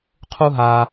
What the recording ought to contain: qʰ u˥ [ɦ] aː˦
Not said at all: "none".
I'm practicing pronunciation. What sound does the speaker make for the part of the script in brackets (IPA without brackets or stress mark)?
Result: ɦ